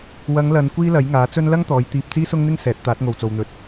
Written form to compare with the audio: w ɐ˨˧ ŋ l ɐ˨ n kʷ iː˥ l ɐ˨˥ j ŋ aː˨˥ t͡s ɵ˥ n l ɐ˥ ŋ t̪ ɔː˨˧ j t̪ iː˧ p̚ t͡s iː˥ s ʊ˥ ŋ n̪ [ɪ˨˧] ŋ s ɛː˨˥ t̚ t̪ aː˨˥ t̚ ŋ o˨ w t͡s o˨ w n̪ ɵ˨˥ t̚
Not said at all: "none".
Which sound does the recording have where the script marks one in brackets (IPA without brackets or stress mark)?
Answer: ɪ˥